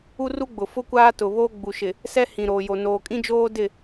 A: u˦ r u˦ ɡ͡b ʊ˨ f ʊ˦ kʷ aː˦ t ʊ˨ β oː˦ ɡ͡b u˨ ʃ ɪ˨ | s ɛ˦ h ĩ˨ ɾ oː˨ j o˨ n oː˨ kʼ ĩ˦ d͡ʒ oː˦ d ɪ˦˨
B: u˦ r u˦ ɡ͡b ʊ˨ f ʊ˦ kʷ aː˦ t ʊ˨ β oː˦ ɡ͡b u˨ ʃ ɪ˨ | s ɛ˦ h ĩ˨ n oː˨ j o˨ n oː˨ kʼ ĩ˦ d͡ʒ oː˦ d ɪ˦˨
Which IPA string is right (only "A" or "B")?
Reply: A